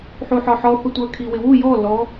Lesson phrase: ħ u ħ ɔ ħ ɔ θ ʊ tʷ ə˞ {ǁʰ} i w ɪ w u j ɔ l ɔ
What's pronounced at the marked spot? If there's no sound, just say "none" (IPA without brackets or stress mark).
kʰ